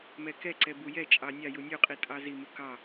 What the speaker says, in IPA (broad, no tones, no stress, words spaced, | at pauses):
mɛkɛǀɛ bujɛt͡ʃʼɑ nʲɑju nʲuqʼi tʼɑzimu kɑ